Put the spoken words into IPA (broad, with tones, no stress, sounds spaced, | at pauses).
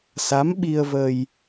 s a˧˥ m ɓ i˧ ə̯ v ə˧ j